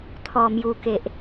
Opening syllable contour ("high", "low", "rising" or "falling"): low